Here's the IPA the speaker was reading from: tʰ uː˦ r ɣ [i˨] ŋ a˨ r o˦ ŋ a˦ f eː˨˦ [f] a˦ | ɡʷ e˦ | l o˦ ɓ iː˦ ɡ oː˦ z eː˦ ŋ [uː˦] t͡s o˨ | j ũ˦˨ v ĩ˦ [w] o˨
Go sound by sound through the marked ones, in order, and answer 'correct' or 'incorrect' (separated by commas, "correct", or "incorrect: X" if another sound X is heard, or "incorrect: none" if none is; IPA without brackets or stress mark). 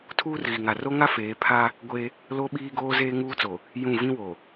correct, incorrect: pʰ, correct, correct